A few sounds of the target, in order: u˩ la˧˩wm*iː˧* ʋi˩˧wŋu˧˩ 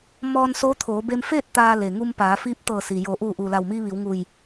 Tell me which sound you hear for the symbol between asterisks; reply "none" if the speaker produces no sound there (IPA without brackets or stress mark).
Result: iː˧